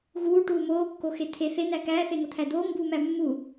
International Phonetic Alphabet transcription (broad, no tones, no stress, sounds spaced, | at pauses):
ɣ uː ʈ uː m oː kː o x e t̪ʰ e θ e n̪ æ k æː θ e ŋ o t̪ʰ æ d̪ oː ŋ b uː m æ mː u